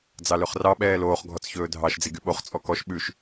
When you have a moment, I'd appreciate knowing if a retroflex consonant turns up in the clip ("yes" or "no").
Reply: no